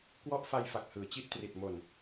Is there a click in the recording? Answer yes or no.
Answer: no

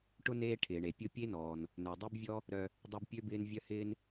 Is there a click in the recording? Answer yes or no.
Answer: no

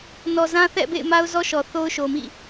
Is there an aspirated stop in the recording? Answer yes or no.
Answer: no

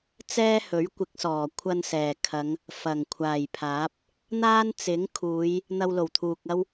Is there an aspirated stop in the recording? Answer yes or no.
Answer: yes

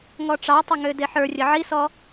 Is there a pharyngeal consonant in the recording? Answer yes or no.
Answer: yes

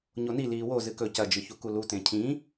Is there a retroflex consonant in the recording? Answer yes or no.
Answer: no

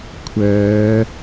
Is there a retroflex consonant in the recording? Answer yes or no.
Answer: no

